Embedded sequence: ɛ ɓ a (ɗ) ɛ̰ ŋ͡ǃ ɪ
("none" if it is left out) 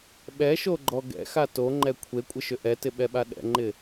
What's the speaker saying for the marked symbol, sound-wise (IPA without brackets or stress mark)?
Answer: ɗ